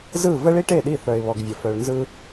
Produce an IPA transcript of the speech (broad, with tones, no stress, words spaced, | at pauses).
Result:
zɯ˦˨ və˦ɭi˦ʈe˦˨ɗi˦˨ θœ˨ɪ̯βɔ˨ɡvʲə˨ fœ˨ɭnzɯ˦